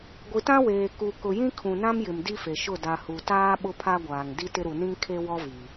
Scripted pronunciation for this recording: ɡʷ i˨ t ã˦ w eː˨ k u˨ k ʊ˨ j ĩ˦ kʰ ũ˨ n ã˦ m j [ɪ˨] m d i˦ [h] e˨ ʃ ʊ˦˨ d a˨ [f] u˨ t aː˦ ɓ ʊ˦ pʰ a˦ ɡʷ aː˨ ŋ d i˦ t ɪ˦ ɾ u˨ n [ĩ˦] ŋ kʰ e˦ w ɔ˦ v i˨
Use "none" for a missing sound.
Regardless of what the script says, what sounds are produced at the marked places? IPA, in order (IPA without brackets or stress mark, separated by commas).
ɪ˨, f, h, ĩ˦